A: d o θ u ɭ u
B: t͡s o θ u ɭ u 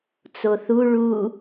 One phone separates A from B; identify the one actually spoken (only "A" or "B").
B